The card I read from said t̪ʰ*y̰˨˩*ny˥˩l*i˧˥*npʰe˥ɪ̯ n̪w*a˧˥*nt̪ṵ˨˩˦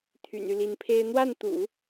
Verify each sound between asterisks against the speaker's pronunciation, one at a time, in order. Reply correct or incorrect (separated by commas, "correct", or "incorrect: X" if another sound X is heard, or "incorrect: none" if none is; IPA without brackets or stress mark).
correct, correct, incorrect: a˥˩